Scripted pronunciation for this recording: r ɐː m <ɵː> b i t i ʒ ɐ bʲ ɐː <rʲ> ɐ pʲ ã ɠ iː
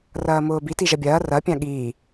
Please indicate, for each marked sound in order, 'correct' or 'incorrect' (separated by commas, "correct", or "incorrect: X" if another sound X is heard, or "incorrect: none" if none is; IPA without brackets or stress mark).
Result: incorrect: ʊː, incorrect: r